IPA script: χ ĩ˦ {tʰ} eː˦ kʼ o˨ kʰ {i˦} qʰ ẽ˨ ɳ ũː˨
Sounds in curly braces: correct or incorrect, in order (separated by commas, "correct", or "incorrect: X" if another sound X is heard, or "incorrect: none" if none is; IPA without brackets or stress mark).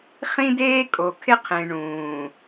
incorrect: d, incorrect: ɪ˦